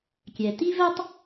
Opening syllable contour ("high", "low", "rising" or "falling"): low